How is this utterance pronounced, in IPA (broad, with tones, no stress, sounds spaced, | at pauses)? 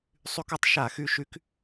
sˤ y˧˥ k o˧˥ tˤ ʃ a˧˩˧ x y˧˥ ʃ y˧˥ k